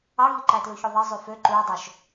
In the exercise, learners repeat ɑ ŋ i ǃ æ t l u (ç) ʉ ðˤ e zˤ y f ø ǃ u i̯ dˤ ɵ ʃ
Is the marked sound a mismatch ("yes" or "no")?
no